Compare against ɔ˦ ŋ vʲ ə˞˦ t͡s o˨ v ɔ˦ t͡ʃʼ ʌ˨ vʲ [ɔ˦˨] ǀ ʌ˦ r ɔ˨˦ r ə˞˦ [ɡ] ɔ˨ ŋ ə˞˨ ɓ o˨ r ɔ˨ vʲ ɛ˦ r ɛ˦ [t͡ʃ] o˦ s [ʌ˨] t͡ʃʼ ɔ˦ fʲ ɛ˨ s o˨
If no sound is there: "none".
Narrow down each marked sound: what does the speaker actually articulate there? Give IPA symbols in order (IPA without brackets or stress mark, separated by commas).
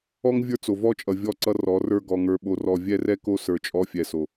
ɔ˦˨, ɡ, k, ə˞˨